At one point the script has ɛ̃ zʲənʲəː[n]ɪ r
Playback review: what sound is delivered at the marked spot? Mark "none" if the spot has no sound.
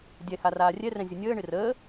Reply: ɳ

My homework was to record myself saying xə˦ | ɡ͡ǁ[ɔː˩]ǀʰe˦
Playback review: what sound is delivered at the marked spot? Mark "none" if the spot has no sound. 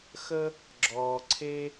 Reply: ɔː˩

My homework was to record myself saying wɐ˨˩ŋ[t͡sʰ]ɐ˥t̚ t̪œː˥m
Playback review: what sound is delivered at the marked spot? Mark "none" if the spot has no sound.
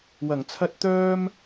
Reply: t͡sʰ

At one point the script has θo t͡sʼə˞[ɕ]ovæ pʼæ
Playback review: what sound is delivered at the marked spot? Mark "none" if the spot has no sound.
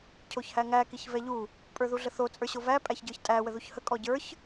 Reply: ɕ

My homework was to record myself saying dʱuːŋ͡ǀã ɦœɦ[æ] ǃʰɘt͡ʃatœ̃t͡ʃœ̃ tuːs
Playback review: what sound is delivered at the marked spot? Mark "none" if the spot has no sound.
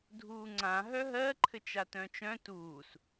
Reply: ɜ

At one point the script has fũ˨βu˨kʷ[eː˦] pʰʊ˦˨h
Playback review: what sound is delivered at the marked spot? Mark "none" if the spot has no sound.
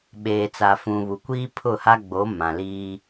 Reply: iː˦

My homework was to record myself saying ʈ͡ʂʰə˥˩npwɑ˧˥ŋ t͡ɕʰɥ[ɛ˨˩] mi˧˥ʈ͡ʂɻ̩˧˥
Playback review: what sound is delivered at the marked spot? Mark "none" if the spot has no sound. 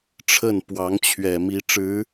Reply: ɛ˨˩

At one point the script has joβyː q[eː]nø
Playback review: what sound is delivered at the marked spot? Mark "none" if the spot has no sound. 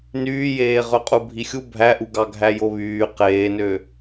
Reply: eː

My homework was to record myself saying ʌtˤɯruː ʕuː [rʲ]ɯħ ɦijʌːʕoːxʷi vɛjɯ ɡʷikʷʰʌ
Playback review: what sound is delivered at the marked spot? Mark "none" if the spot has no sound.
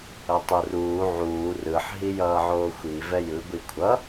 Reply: r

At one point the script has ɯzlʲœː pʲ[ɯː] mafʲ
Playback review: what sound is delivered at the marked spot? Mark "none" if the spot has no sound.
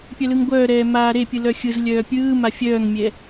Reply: ɯː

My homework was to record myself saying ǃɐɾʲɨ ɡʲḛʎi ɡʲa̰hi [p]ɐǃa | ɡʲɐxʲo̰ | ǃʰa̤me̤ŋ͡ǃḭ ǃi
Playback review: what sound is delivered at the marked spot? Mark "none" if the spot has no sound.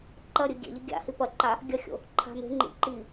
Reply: p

